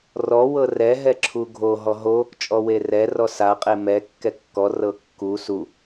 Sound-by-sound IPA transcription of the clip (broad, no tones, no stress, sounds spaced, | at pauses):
r ɔ w ɤ r ɛ ɦ ɛ ǁʰ u ɡʱ o ɦ ɔ ɦ o | t͡ʃʼ ɔ w e r ɛ r ɔ s a qʼ e m ɛ kː ɛ kː ɔ r ɤ kː u s u